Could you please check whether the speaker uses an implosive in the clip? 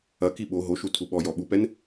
yes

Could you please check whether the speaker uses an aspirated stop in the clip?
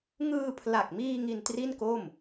yes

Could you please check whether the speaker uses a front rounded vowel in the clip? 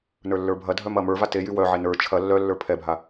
yes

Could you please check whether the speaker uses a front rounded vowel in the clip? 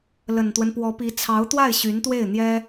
yes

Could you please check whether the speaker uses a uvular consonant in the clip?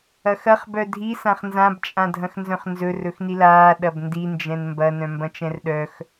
yes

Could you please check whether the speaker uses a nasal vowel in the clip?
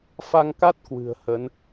no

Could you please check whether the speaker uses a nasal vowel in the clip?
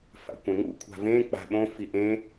yes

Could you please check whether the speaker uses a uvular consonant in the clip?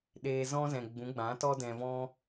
no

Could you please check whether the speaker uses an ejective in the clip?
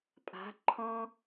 yes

